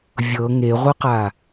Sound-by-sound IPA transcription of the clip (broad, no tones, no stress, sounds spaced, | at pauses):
vʲ ɤ ŋ e ʁʷ ɯ q a